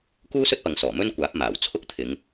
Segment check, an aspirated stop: present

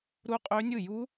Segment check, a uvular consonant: present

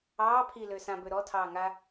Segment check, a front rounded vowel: present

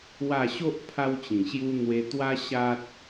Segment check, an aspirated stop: present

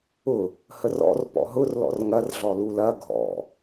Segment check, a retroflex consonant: absent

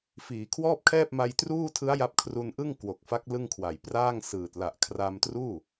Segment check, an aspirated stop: present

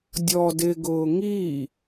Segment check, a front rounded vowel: absent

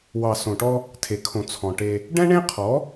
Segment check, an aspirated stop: present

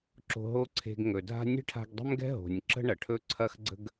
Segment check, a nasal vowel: absent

